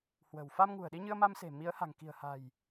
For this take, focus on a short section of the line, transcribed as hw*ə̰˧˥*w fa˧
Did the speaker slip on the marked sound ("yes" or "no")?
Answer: yes